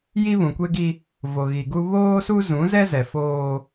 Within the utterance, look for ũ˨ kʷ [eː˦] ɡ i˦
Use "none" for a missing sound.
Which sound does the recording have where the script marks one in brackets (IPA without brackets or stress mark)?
e˦